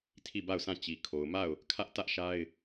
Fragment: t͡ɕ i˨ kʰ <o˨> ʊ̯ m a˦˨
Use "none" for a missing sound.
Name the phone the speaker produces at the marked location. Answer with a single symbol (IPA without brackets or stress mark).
o˨